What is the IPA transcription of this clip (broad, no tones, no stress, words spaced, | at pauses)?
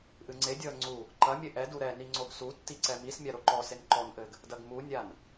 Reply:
ʔɨŋ͡ǀedʲɔə̯ ŋ͡ǀu | ǃɐmʲɘ ʔɛdu ɾɛni ŋ͡ǀoɡsutːi ǀɛmismʲa ɾoǃɔsen ǃɔnʔɘɡ | dɐɡmunʲan